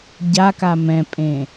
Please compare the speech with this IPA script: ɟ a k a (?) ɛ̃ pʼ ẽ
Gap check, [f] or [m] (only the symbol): m